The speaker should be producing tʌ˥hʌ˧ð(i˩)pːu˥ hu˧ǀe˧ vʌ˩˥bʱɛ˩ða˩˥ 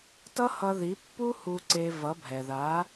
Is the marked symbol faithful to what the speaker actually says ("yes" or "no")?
no